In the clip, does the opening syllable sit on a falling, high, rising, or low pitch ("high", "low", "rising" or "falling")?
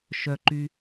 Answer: high